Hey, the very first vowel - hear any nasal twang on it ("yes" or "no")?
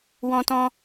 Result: yes